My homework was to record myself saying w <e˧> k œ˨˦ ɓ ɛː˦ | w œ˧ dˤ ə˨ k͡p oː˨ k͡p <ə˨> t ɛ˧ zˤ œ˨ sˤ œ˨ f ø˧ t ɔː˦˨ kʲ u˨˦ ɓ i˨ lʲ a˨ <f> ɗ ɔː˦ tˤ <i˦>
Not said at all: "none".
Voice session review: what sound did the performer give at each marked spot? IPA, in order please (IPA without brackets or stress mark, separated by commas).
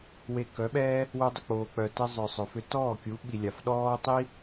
e˧, œ˨, f, i˦